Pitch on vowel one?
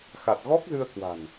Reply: low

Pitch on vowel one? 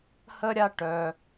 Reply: high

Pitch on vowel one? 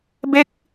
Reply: high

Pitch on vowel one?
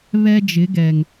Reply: high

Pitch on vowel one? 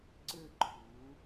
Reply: falling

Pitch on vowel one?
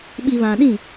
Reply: low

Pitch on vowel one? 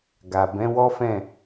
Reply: low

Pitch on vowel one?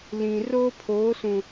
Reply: low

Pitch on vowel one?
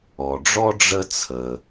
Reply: low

